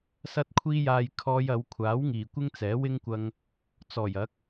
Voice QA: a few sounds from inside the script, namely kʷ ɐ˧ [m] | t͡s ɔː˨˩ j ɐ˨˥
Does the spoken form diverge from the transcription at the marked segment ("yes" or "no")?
yes